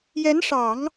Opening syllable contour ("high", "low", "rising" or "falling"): rising